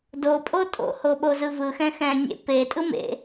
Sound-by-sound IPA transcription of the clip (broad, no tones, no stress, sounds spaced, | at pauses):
d o pʼ o tʼ o̰ h o ɓ o z ɯ v ɯ x ɛ̃ x ɛ̃ nʲ ḛ p e tʼ ɯ m ḛ